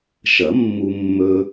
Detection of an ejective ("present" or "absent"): absent